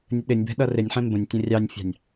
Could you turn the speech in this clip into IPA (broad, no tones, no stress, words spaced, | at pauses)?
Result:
nʲəɗɪnʲbɛ̤ ɗʌrɪnʲħɛ̃ mbə̃nʲ tʲə̃rʲɑnʲfʲɑ̤nʲ